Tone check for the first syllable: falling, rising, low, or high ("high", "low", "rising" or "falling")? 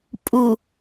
low